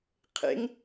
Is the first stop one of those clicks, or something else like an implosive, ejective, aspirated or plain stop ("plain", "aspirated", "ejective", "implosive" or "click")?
aspirated